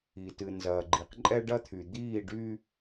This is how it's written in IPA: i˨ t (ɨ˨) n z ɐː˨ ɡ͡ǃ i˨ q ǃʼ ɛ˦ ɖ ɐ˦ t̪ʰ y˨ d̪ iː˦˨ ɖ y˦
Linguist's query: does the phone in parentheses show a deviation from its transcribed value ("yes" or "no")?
no